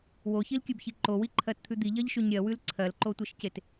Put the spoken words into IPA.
w o ç i l kʲ ʉ b ç i ǃ o w i ǃʰ ɜ t t̪ʰ ʉ d̪ i ʎ ɜ ʎ ʃ ʉ ɲ ɾʲ ɜ w ʉ l ǀʰ ɜ l ǃ o tʷ e ʃ c e t

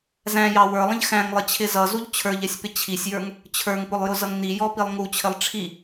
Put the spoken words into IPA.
z æ̃ j ɑ w ə˞ lˠ ə̃ ʎ x æ̃ ŋ lˠ ɪ t͡ɕʰ ɪ z ʌ z u ʎ t͡ɕʰ ə˞ ʎ ɛ sʲ p ɪ t͡ɕʰ i sʲ j ə˞ ŋ | t͡ɕʰ ə˞ ŋ p ʊ lˠ j ʊ z ʌ ŋ n i j ɔ p i lˠ ŋ u t͡ɕʰ ɪ lˠ ʈ͡ʂʰ i

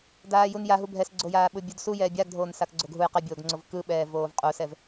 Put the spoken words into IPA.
d aː j u n j a ɦ u bʱ ɛ s ɡ͡ǀ o j aː ɓ ɯ bʲ u d s u j ɛː bʲ a ɡ dʱ oː n s a k ɡ͡ǀ o ɡ ɦ u j q ɛ bʲ oː ɡ ŋ͡ǀ o v k ɯ ɓ ɛː v oː v qʼ u s ɛ v

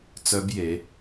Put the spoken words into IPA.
t͡s œ˦˥ b j e˩˧

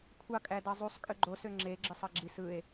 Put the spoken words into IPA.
kʷʰ ɑ kʼ æ d ɑ zˤ u sˤ kʼ ø ɡ͡ǃ o s ø ŋ͡ǁ e ɡ͡ǁ ɯ sˤ ɑ ɡ͡ǁ i s ɯ e̯

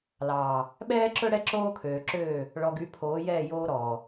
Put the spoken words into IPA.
l ɑː˨ | ɓ ɛː˦ ǁ ɵ˦ ɽ ɛ˦ ǁ oː˦ kʰ øː˨ ǁ øː˦˨ | ɭ ɔ˨ ɡ y˨˦ pʰ oː˨˦ j ɛː˦˨ j oː˦ ɾ ɔː˨

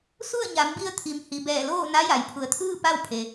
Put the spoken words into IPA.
s u˥˨ ə̯ ɲ a˩˧ m b i˧ ə̯ t̪ʰ i˩˧ m h i˩ b ɛː˧˩ l oː˥˨ n a˧˥ j a˩ j pʰ u˩˧ ə̯ t̪ʰ ɯː˥˨ p a˥˨ w pʰ e˩

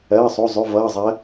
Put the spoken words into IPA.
ɜː˩˧˩ sˤ o˩˧˩ zˤ ʉ˩˧˩ v ʌː˩˧˩ zˤ ɜ˩˧

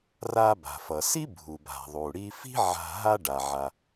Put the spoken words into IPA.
r a˧ b a̤˩ f ʌ˩ s i˥ bʱ u˩ b a̤˩ ðˤ u˩ ɽ i˧ f i̤˥ ʕ a̤˧ ɦ a˥ ɖ a˩ ʕ a˩

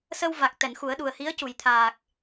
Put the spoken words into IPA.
s ə˧ w v a˨˩ k̚ t̪ ɛ˨˩˨ n x u˨˩˦ ə̯ ɗ u˨˩ ə̯ h i˧˥ ə̯ c u˨˩˨ j t̪ʰ aː˨˩ k̚

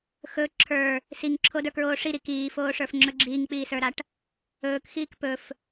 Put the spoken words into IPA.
x ɵ ǁʰ ə˞ | s i ŋ ǁʰ o d ə˞ k ɹ oː ʂ i ɾ i k iː f oː ʂ ə˞ f ŋ͡ǁ ɵ ɡ͡ǁ iː ŋ k͡p iː s ə˞ ɾ a ʈ | ɵː k x iː k p ɵ f

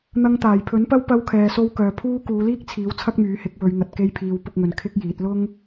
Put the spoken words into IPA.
n̪ ɐ˧ ŋ t̪ aː˨˩ j pʰ ɵ˨˥ n p ɐ˥ w p ɐ˧ w kʰ ɛː˨ s o˧ w k œː˨ pʰ uː˥ k uː˨˧ l iː˥ k̚ t͡sʰ iː˨˥ w t͡sʰ ɐ˥ k̚ m yː˨˥ h ɪ˨˥ k̚ w ɵ˨˧ ɥ ŋ ɐ˨ t̚ k e˧ j pʰ iː˨˧ w p ʊ˧ k̚ ŋ ɵ˨ n kʰ ɪ˥ k̚ j iː˨˥ t̚ l ʊ˥ ŋ

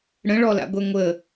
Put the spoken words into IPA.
ɽ ə̃ ɭ ɔ l a̰ ɡʷ ɛ ŋʷ ə

